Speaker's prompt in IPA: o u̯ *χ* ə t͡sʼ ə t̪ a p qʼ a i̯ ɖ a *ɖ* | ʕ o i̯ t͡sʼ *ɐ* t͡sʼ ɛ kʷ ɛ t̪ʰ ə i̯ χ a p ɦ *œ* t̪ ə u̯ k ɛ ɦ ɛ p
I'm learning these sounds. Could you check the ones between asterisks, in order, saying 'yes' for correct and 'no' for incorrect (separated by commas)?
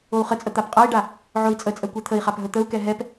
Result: yes, no, no, no